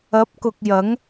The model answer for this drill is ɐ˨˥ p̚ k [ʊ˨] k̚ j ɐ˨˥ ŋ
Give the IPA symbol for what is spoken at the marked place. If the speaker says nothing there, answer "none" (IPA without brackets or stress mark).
ʊ˨